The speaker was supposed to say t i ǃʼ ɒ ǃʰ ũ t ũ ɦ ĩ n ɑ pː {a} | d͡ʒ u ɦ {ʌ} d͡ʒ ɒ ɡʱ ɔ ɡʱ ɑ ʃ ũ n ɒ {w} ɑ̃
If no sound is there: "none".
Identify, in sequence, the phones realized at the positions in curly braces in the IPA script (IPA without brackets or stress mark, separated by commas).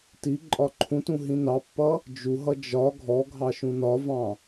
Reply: ʌ, ʌ, v